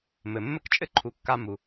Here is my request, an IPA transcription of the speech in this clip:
m ɘ˨ mː ɘ˦ k t͡ʃʼ ɘ˦ ǃʰ u˨ kː a˧ m u˨

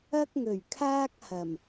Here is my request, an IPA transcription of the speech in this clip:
ɐ˥ k̚ ŋ ɵ˨˩ ɥ kʰ aː˥ k̚ h ɐ˨˩ m

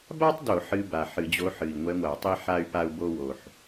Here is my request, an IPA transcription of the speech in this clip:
b a˥ tˤ d o˧˩˧ ħ ɨ˧˥ b a˨˩ ħ ɨ˧˩˧ d͡ʑ o˧˥ ħ ɨ˨˩ i̯ ŋʷ ɛ˧˥ ŋʷ a˧˩˧ tˤ i˥ ħ a˥ y̯ p a˥ u̯ b o˥ w o˨˩ ħ

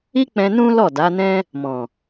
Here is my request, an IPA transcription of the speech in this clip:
i˦ k͡p ɛ̃˧ n ũ˦ l ɔ˦˨ d a˨˦ n ɛ̃˦ | m ɔ̃˨

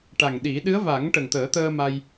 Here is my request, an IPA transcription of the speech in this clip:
ʈ a˨˩ ŋ ɗ i˨˩˦ ɗ ɨ˧˥ ə̯ v a˨˩˦ ŋ ʈ ə˨˩ ŋ t̪ əː˨˩˦ t̪ əː˧ m a˧ j

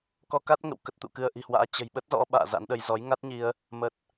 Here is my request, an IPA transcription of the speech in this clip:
k ɔ˧ k a˦˥ t̚ ŋ ə̰˧˨ w k ə˦˥ t̚ t̪ ṵ˧˨ k ɨ˧ ə̯ ʔ i̤˨˩ h w a̰ː˧˥ t͡ɕ ə̤˨˩ j ɓ ə˦˥ t̚ z ɔ̰˧˥ ɓ a̰ː˧˨ z a̰˧˥ n ɗ ə˧ j z ɔ˨˦ j ŋ a˦˥ t̚ ɲ i˧ ə̯ | m ə˨˩ t̚

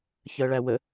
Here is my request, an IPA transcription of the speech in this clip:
ç ɜ ɭ æ w ə

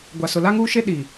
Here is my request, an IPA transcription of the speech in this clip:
ɡʷ a˨ s ʊ˨ l a˦ ŋ uː˦ ʃ e˦ ɗ i˨

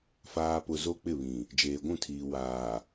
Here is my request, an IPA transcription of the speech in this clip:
f aː˨ p ʊ˨ z o˦ k͡p ɪ˦˨ β ĩ˨ | d͡ʒ eː˨ ɡʷ ũ˦˨ tʰ iː˨ w aː˨

